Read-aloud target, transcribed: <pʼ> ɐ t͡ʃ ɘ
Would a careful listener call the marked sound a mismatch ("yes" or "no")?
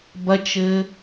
yes